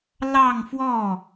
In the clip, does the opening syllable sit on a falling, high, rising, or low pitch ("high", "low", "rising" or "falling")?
falling